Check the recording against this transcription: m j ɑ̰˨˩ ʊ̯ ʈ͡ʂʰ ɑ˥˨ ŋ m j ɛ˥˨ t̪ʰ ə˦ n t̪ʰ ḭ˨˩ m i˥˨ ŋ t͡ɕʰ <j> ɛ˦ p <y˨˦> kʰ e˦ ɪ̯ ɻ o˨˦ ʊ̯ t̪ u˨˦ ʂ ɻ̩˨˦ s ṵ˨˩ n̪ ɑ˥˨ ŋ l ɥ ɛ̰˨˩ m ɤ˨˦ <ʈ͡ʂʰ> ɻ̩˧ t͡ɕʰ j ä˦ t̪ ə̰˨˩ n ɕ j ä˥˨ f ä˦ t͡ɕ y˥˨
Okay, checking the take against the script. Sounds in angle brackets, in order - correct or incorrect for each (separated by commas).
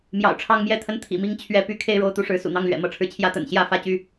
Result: incorrect, incorrect, correct